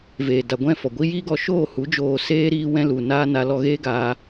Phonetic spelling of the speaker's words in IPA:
v eː˨ d a˨ ɡʷ ɛ̃˦˨ f ɔ˨ ɡʷ i˧ j iː˦ ɡ ɔ˧ ʃ oː˦˨ h u˨˦ d͡ʒ oː˨ s eː˦ ɾ iː˦ w ɛ̃˦ l u˨ n aː˧ n a˧ l ɔ˧ ɣ eː˦ ɡ aː˧

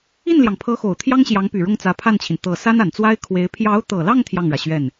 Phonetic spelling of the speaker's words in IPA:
i˥˩ n l j ɑ˩ ŋ pʰ ɤ˧˥ x o˨˩ ʊ̯ t̪ʰ j ɑ˥ ŋ ɕ j ɑ˧˥ ŋ p y˨˩ ɻ ʊ˥˩ ŋ t͡s ä˧˥ pʰ a˥˩ n t͡ɕʰ i˩ n t̪ ɤ˨˩ s a˥ n a˨˩ n t͡s w a˥ ɪ̯ kʰ w e˧˥ ɪ̯ pʰ j ɑ˧˥ ʊ̯ t̪ ɤ˨˩ l ɑ˥˧ ŋ t̪ʰ j ɑ˥˩ ŋ ɻ ä˩ ɕ ɥ ɛ˥˩ n

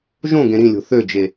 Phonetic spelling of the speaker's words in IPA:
ʒ õ ɡ ẽ ɾ ĩ lʲ o̤ θ ø d͡ʒ e

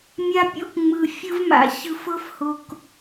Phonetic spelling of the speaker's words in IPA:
mʲ a˦ pʲ o̰˦ k ŋ͡m ɯ˨ fʲ ɯ˦ v m a̰˨ ç ɯ˨ f ɤ˦ f h o˨ k

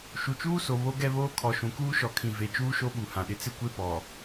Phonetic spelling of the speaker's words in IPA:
ʃ u˨ t͡ʃ uː˦ s o˨ β o˦ ɡ ɛ˦ β oː˦ kʰ ɔ˨ ʃ ũ˨ k uː˦ ʃ ɔ˨ kʰ ĩ˨ v e˨ t͡ʃ uː˦ ʃ o˦ ɓ u˨ h ã˨ ɗ ɪ˦ t͡s ɪ˦ kʷ e˦ p ɔ˨

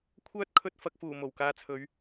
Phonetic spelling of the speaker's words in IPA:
kʷʰ œː˥ t̚ kʰ ɵ˧ t̚ f ɐ˨ k̚ f uː˨˩ m o˨˩ w k aː˧ t͡sʰ ɵ˨˧ ɥ

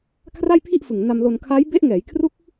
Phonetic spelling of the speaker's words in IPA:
kʰ r a˥˩ j pʰ i˥˩ ʔ f ɯ˨˩ ŋ n a˧ m l o˧ n kʰ a˦˥ j b e˦˥ ʔ ŋ ɛː˩˦ j kʰ r u˦˥ k̚

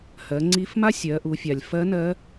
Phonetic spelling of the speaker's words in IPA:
h ɜ˩˧ ŋ͡ǀ i˧˥ f m a˥ sʲ ɜ˩˧ ʔ u˩˧ fʲ a˩ lʲ f ɜ˧˥ n ɜ˧˥

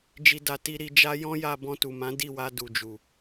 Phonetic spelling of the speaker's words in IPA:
d͡ʒ i˨ d a˨ t i˧ ɾ i˧ d͡ʒ a˦ j ɔ̃˦ j a˧ b ɔ̃˧ t u˨ m ã˨˦ d i˦˨ w a˧ d u˨ d͡ʒ u˨

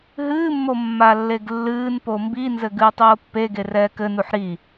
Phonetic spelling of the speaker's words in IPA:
ɦ ɨː mː o mː a lː e ɡ lː ɨː n p o m b i n z ɘ ɡ ɨː tˤ oː pː e ɡ e r ɛː k ɘ n u ħ ɾ i

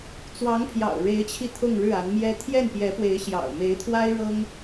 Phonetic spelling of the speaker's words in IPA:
t͡s w ɑ˧˥ ŋ pʰ j ɑ̰˨˩ ʊ̯ ɻ e˧˥ ɪ̯ t͡ɕʰ i˧ t̪ʰ ʊ˥˧ ŋ ɻ ɻ̩˥˩ a˧˥ n m j ɛ˥ t̪ʰ j ɛ˥˩ n p j ɛ˧˥ p w e˧˥ ɪ̯ ɕ j ɑ̰˨˩ ʊ̯ m e˧˥ ɪ̯ t̪ʰ w a˥ ɪ̯ ɻ ɤ˥ ŋ

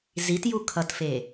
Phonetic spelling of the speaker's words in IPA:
z i t j u kʰ ʌ t f e

